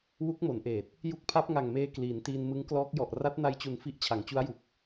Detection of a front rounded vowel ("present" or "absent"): absent